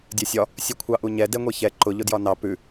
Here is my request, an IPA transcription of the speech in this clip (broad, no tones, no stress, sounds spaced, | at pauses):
dʲ ɛ sʲ ɒ | sʲ ʉ kʷʰ ɑ ʔ u ɲ ɛ d ɛ ŋʷ e ç ɛ ǃ ʊ ʎ ʊ d j ɒ n ɑ p ʉ